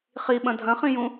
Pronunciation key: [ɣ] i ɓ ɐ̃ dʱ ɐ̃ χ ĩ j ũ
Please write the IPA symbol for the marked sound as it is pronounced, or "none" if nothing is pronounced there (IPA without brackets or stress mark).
χ